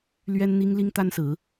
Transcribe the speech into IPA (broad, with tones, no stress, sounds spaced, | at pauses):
l ɥ ɛ˥ n n̪ i˥ ŋ l i˥ ŋ t̪ a˥ n s ɹ̩˧˥